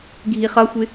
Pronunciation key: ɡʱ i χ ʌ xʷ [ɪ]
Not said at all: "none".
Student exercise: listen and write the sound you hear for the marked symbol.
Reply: ɪ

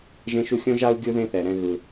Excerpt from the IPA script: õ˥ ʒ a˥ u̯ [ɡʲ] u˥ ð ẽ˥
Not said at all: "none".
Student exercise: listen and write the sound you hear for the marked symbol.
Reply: ɡʲ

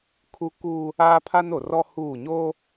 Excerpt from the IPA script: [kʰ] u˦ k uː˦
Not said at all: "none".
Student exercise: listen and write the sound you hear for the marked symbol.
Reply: kʰ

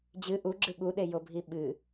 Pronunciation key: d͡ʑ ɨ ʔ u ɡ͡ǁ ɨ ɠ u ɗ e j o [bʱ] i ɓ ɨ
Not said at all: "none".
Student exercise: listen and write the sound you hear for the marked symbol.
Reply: bʱ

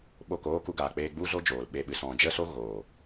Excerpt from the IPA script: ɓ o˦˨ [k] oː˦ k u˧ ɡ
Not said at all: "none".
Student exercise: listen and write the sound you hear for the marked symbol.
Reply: k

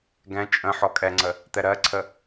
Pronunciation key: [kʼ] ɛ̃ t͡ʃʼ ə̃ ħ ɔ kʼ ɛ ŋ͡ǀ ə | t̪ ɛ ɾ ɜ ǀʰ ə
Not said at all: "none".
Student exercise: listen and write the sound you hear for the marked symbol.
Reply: ɡ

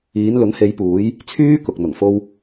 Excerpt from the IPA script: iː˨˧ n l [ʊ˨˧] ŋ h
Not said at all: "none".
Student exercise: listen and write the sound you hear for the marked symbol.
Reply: ʊ˨˥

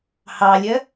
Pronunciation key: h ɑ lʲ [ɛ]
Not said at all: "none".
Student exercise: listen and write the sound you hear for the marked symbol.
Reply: ɜ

